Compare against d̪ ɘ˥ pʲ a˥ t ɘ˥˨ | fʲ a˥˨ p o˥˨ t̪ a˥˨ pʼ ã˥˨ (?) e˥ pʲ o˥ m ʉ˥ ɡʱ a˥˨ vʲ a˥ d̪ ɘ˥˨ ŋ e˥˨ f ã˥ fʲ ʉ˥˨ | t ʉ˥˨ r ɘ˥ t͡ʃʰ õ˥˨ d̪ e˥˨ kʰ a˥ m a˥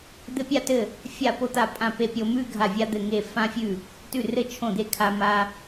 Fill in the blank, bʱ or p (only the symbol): p